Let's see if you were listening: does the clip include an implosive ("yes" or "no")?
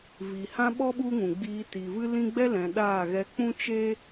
yes